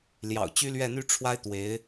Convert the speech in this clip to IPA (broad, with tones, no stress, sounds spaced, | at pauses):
l j ɑ̰˨˩ ʊ̯ t͡ɕ y˥ l ɥ ɛ˥˩ n̪ y˥ ʈ͡ʂʰ w a˥ ɪ̯ t̪ w e˧˥ ɪ̯